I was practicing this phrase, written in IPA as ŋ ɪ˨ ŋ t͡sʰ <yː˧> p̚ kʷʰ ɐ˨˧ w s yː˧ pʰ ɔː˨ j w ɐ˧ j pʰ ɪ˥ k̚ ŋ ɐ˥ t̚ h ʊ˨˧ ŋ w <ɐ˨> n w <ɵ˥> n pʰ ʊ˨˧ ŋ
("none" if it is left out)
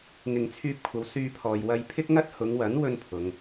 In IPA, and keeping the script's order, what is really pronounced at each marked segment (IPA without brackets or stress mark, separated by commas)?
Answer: yː˧, ɐ˨˥, ɵ˥